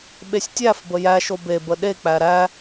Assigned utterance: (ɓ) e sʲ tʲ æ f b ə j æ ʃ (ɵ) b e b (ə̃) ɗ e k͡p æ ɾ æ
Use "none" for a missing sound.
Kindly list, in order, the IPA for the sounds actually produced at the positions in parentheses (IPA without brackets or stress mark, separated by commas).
ɓ, o, ə